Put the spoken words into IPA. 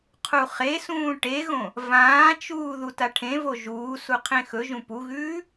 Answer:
qʰ u χ e s ũː ʈ e ɣ õ | v ãː t͡ʃ uː ð u t a ʈʰ ẽ v o ʒ uː s u qʰ ẽ x ɵ ʒ ũ p u ɣ ʉː

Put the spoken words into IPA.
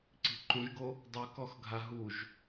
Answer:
ǀ i̤ ǃ ũ ʒ ɡ o | dˤ u k ɔ x ɡʱ a ɦ u ʒ

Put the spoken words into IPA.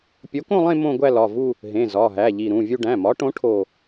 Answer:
pʲ o˨˥ k õ˥˧ lˠ ẽ˥˧ m õ˥˧ ɡʷ æ˥˧ l ɒ˩˧˩ v u˥˧ | ɦ ẽ˩˧˩ z ɒ˩˧˩ ɦ æ˩˧˩ ʎ i˧˩ ɾ ũ˩˧˩ vʲ u˥˧ ɖ æ̃˩˧˩ m ɒ˨˥ ʈ õ˨˥ ʈʰ o˥˧

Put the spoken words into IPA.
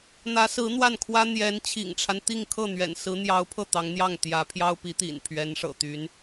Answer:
n̪ ä˧˥ s ɹ̩˧˥ n̪ w a˥˩ n kʰ w ä˥ n̪ j ɛ˧˥ n t͡ɕʰ ḭ˨˩ ŋ ʈ͡ʂʰ a˦ n t̪ i˥˧ ŋ kʰ ɤ˥˩ n̪ ɥ ɛ̰˨˩ n s ɹ̩˧˥ n̪ j ɑ˧˥ ʊ̯ pʰ ɤ˥˩ t̪ ɑ˧˥ ŋ n̪ j ɑ˥˩ ŋ t̪ j ä˧˥ pʰ j ɑ˥ ʊ̯ p i˧˥ t̪ ḭ˨˩ n pʰ ɥ ɛ˧˥ n ʂ ɤ̰˨˩ t̪ y˧˥ n

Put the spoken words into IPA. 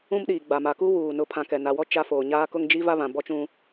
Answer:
ũ˦ m ɗ iː˨ ɡ͡b a˨ m a˨ k u˦ w uː˨ n ʊ˨˦ pʰ ã˨ k ɛ˨ n a˨ w ɔ˦ t͡ʃ a˦ f oː˨ ɲ aː˦ k ʊ˦ ŋ d͡ʒ i˦ v a˦ β ã˨ b ɔ˦ t͡ʃ ũ˦

